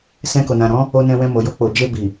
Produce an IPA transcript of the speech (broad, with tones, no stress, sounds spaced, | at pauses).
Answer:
s ɛ̃˧ k o˨ n ã˨ ɾ ɔ̃˨˦ | o˧ n ɛ̃˧ w ɛ̃˧ m o˨ j o˧ k͡p o˨ d͡ʒ e˧ b i˨